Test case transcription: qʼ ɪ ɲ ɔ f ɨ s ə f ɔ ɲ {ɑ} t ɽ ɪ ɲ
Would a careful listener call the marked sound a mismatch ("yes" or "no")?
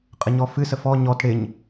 yes